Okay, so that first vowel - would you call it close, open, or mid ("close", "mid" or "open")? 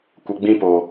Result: mid